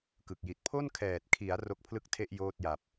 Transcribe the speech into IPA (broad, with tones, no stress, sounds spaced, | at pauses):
k ɯ˨˩ k̚ j i˨˩ t̚ pʰ o˥˩ n kʰ ɛː˨˩ t̚ kʰ i˩˦ a̯ r o˦˥ k̚ pʰ l ɯ˥˩ k̚ tʰ e˥˩ ʔ j oː˥˩ t̚ j a˨˩ p̚